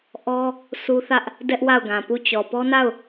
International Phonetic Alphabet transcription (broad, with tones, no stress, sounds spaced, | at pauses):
ʔ ɔ˦ | s u˦ θ ä˦ ʔ | d ɛ˦ ʔ w a˦˨ ʊ̯ ɡ ã˨ p u˦˨ t͡ɕ ɔ˨ p ɔ˦ n a˦˨ ʊ̯